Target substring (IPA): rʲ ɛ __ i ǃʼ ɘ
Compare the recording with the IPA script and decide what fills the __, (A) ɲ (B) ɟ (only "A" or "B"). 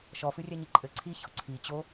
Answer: A